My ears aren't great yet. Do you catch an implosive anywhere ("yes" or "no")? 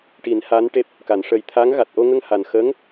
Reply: no